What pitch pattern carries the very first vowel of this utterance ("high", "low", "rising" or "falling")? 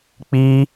high